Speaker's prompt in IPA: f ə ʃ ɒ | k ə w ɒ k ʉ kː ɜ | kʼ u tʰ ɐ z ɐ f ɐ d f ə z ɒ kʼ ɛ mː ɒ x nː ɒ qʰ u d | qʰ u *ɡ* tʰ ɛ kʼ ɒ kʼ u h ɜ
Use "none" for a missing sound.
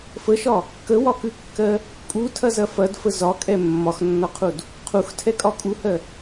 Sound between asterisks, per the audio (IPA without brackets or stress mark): x